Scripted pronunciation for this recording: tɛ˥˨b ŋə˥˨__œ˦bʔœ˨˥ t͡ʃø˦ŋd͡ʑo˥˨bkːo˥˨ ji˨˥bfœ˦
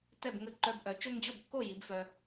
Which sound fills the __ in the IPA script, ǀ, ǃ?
ǃ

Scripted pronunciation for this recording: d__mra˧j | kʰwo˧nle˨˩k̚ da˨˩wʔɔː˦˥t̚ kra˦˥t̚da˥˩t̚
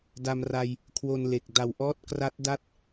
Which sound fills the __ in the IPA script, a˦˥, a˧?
a˧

